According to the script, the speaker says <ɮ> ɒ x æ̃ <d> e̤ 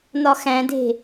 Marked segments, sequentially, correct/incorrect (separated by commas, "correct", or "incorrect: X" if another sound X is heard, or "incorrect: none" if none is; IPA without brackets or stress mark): incorrect: n, correct